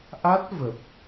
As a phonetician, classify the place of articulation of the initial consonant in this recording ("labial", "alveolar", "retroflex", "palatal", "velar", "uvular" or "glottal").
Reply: glottal